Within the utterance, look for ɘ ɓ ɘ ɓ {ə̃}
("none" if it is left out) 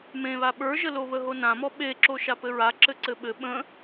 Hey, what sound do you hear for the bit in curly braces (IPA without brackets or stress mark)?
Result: ə̃